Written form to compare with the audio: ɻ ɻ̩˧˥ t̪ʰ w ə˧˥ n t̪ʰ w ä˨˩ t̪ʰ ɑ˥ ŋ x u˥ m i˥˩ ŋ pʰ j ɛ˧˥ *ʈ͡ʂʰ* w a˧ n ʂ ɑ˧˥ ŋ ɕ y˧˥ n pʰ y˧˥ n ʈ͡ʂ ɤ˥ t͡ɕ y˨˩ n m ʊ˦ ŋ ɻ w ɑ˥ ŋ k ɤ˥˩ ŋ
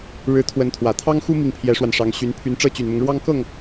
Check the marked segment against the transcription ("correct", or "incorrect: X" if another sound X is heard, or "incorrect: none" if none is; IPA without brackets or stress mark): incorrect: ʂ